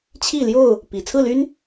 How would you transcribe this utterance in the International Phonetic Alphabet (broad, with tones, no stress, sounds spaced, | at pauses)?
t͡ɕʰ i˥˨ l j o˥˨ ʊ̯ | p i˨˩ t͡sʰ ɹ̩˥˨ l y˦ n